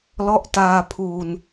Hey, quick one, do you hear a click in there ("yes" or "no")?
no